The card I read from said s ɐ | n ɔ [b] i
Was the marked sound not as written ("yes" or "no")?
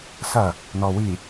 yes